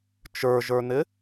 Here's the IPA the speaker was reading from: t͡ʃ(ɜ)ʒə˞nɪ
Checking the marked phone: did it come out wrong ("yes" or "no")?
yes